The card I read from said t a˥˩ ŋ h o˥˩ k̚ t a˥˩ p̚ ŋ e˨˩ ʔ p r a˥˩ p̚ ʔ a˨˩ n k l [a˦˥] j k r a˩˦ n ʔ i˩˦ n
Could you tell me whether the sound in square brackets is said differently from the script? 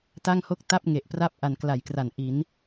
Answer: yes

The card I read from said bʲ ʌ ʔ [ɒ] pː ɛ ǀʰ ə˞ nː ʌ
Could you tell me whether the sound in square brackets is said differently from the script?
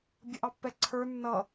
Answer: yes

